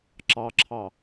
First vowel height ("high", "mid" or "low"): low